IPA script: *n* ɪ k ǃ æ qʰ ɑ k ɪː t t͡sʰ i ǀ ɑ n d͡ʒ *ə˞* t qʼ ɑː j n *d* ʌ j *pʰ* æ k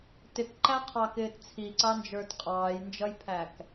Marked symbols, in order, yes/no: no, yes, no, yes

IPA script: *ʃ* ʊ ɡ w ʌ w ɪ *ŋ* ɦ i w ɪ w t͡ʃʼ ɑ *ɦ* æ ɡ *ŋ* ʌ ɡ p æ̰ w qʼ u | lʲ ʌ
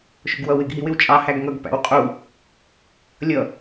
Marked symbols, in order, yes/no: yes, no, no, yes

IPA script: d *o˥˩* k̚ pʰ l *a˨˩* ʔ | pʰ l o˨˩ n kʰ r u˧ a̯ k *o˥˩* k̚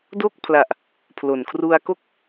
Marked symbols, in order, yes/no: yes, yes, yes

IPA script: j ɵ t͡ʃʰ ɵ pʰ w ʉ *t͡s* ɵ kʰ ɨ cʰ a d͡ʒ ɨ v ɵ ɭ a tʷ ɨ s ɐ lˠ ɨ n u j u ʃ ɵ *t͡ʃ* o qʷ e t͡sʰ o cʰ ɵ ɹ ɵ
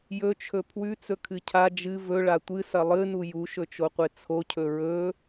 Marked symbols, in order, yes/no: yes, yes

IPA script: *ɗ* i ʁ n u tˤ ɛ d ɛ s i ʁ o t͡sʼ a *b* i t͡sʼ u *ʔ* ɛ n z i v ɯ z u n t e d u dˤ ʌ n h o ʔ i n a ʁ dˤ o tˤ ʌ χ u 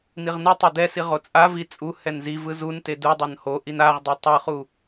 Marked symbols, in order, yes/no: no, no, no

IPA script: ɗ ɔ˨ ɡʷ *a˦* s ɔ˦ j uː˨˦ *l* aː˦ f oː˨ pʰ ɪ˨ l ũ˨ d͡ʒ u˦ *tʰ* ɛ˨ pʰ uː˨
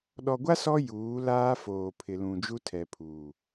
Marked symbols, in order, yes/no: yes, yes, yes

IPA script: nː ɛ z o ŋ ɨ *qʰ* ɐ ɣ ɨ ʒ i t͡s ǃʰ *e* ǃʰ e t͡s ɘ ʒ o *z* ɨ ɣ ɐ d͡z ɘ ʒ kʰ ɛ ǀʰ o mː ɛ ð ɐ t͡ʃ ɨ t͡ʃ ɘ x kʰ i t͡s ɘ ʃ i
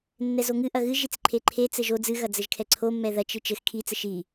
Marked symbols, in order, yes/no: no, yes, no

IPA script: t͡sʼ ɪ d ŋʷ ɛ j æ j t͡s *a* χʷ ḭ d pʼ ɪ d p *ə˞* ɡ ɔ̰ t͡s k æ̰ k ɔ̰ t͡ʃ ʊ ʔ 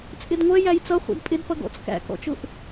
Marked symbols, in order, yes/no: no, no

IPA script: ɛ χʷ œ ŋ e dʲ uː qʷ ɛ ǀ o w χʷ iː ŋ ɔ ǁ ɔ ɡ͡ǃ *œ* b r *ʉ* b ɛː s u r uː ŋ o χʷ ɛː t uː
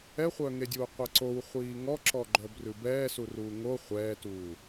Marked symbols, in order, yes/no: yes, yes

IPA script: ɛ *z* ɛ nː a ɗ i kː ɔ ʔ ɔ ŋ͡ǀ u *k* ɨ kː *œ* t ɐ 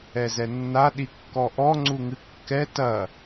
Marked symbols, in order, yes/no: yes, no, no

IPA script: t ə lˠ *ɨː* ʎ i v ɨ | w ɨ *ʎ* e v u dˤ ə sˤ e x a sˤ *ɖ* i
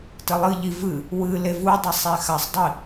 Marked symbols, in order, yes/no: no, no, no

